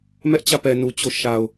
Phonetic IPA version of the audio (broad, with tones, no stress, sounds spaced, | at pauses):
m ɛ˦ ʔ t͡ɕ ä˦˨ p ɛ˨ n u˨ t͡ɕ o˦ ʃ a˨ ʊ̯